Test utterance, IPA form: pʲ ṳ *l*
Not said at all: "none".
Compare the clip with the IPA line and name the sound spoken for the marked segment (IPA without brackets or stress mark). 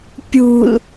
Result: l